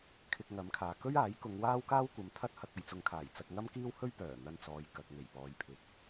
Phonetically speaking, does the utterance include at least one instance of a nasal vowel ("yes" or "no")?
no